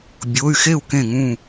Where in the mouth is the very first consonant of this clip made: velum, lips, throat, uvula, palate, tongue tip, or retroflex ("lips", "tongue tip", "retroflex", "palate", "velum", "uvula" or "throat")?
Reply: lips